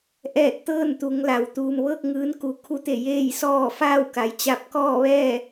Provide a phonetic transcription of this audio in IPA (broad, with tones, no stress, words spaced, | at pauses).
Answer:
ʔɛː˧˩t̚ t̪ɤː˥˨nt̪u˩˧ŋ la˩w t̪uː˩mʋɤː˥˨k̚ ŋɯː˧˥nku˩ kʰu˧˥t̪e˧˩ jeː˥˨jsɔː˥˨ faː˥˨wka˩jt͡ɕa˧˥p̚ kɔː˥˨ʋɛː˥˨